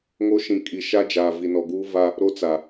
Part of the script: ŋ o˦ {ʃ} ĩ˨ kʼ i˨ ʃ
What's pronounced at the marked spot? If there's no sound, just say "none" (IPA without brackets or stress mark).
ʃ